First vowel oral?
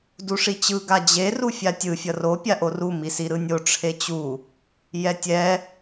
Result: yes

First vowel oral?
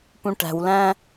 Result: no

